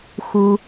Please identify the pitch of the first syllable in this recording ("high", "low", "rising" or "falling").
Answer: low